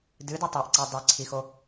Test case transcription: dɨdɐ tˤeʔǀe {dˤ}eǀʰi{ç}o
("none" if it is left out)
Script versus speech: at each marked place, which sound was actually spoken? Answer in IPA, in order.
dˤ, x

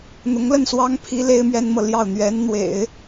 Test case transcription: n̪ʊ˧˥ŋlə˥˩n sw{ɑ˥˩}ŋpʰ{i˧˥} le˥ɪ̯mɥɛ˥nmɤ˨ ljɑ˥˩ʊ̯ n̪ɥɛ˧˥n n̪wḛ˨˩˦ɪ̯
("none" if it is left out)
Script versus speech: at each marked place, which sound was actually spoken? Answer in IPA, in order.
ɑ˥, i˧˥

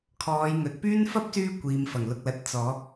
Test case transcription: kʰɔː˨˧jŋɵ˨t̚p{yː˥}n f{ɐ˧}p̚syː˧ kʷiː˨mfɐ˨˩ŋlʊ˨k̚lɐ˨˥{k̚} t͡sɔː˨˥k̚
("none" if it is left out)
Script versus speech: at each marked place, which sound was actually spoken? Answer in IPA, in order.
yː˥, ɐ˥, t̚

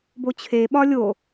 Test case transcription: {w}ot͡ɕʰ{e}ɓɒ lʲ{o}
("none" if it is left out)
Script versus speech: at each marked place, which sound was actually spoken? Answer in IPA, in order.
b, e, o

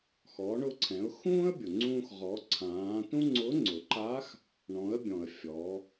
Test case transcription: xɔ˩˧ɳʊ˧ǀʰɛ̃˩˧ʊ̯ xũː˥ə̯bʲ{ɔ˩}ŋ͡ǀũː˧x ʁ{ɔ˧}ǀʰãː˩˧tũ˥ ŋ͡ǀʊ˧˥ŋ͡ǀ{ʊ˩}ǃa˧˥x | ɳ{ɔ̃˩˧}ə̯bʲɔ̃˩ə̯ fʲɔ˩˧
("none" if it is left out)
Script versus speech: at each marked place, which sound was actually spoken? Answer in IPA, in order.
ʊ˩, ɔ˩˧, ʊ˩, ɔ̃˩˧

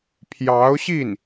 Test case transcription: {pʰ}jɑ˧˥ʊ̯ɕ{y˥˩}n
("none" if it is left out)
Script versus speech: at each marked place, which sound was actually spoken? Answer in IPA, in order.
pʰ, i˥˩

